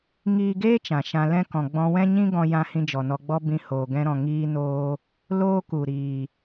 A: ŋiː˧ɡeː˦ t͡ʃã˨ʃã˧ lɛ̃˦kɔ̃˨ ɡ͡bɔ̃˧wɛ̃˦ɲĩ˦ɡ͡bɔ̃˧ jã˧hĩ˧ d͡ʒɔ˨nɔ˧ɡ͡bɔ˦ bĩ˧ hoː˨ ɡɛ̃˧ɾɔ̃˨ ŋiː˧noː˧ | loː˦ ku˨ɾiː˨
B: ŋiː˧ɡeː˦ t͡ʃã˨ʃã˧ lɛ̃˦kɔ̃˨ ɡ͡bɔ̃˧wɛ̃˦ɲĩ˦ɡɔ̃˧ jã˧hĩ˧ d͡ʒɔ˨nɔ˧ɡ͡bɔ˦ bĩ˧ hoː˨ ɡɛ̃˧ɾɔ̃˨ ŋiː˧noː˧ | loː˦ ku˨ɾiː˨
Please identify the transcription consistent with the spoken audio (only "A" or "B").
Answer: B